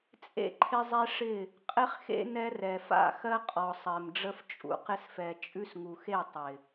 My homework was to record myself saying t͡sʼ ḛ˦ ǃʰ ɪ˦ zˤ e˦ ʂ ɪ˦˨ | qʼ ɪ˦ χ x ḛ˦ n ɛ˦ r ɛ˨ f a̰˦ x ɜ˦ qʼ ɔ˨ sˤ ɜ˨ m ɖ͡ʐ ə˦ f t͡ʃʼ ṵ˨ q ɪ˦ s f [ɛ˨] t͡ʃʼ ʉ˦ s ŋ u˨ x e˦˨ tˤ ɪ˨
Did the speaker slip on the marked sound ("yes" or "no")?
no